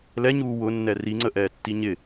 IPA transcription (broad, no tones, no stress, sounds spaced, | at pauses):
l ɛ ɲ uː w ʊ nː ɛ r i ŋ͡ǀ ə ʔ ɛː tː i ɲ ɪ